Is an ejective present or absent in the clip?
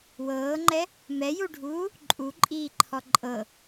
present